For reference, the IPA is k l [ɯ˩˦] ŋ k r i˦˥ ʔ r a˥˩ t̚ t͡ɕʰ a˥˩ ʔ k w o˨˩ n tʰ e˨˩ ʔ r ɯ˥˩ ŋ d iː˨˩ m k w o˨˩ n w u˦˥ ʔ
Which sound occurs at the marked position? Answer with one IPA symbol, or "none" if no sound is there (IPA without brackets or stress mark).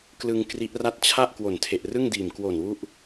ɯ˧